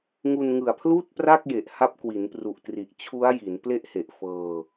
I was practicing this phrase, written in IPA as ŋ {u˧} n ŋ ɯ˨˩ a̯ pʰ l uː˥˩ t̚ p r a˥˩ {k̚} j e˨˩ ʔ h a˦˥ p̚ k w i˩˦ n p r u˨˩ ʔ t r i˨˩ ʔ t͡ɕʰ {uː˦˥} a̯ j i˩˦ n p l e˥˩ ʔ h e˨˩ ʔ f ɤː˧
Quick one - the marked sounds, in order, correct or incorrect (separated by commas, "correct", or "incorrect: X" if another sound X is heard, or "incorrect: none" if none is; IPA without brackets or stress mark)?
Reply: correct, correct, incorrect: u˦˥